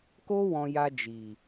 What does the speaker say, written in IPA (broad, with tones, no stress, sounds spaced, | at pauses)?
k o˦ w ɔ̃˧ j a˧ d͡ʒ i˨